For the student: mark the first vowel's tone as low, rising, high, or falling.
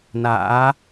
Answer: rising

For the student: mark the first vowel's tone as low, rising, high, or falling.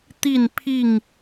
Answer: falling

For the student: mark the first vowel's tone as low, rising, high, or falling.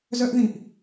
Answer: high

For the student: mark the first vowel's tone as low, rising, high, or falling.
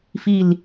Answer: falling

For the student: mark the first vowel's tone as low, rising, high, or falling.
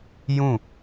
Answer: falling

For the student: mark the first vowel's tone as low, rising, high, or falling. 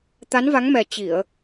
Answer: rising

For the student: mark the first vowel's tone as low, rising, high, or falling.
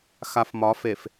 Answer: low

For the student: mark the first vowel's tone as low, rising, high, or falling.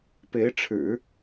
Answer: rising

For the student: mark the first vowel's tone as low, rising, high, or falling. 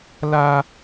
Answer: high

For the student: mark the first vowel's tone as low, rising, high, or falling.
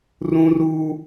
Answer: high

